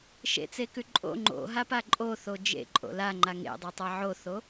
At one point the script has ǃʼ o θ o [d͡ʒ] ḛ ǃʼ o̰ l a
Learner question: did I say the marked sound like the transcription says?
yes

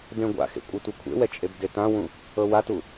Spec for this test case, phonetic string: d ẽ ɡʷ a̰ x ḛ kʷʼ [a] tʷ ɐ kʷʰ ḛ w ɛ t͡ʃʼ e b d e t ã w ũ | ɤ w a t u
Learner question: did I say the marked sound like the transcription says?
yes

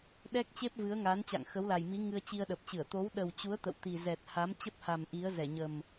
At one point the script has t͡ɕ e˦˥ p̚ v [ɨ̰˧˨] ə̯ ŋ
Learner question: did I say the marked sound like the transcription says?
no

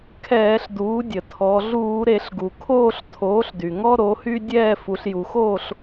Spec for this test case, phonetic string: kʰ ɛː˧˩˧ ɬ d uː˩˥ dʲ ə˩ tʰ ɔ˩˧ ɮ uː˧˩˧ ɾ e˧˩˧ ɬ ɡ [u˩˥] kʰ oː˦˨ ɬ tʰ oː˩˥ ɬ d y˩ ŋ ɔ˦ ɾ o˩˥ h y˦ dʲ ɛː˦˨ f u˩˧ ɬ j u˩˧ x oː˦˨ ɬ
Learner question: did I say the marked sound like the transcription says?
no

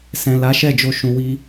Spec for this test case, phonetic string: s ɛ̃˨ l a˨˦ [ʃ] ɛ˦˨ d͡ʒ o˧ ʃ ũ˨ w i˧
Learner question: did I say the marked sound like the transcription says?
yes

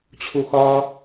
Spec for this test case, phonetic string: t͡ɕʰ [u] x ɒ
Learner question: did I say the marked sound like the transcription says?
yes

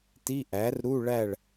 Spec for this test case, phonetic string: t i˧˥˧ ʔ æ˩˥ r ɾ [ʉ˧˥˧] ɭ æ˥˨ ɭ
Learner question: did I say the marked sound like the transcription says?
no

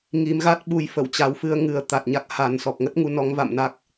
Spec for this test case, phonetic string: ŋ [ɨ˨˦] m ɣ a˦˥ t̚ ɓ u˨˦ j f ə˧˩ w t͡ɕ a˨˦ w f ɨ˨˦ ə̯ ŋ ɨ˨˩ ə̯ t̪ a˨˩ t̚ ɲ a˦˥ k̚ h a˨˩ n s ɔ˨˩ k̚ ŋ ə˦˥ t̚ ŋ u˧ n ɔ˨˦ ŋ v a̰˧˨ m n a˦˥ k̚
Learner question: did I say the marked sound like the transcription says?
no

